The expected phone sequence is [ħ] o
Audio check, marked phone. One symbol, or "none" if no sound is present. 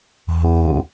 ɦ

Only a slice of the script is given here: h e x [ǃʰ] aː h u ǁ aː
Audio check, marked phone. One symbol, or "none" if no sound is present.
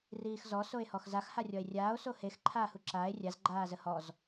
ǃʰ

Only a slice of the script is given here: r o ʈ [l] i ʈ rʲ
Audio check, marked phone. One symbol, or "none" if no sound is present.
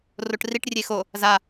r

